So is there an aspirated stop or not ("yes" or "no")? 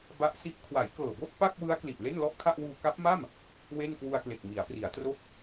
yes